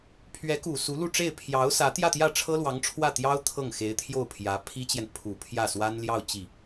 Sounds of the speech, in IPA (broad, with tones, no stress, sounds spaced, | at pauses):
pʰ ɥ ɛ˧˥ k u˨˩ s u˧˥ l u˥˧ ʈ͡ʂ e˥˩ ɪ̯ pʰ j ɑ˧˥ ʊ̯ s ä˧˥ t̪ j ä˥˧ t̪ j ä˥˩ ʈ͡ʂʰ ɤ˥ l w ɑ˧˥ ŋ ʈ͡ʂʰ w ä˥˩ t̪ j ɑ˥ ʊ̯ t̪ʰ ɤ˥˩ ŋ x e˧˥ ɪ̯ t̪ʰ j o˥˩ ʊ̯ pʰ j ä˧˥ pʰ i˥ t͡ɕ j ɛ˨ n pʰ u˨˩ pʰ j ä˥˩ s w a˥ n l j ɑ˥˧ ʊ̯ t͡ɕ i˥˩